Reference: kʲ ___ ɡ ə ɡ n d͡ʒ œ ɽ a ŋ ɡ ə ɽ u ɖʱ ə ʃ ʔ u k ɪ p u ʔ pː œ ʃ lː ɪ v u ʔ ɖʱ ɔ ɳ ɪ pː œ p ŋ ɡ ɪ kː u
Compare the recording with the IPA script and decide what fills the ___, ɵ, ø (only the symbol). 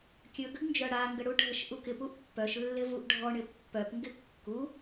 ɵ